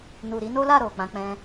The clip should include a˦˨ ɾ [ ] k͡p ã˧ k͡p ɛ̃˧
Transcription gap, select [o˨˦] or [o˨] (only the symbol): o˨